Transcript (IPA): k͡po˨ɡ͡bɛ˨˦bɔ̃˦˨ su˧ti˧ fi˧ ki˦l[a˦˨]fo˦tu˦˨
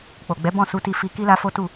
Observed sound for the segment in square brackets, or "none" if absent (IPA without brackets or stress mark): a˦